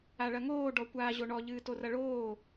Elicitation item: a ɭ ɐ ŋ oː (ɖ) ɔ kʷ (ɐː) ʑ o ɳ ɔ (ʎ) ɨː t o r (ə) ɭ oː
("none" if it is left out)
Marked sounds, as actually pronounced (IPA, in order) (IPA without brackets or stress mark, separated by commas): ɖ, aː, ʎ, ɐ